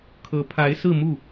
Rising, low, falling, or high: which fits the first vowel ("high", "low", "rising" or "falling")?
rising